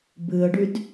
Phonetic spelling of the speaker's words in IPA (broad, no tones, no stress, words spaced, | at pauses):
bɨə̯ɖyd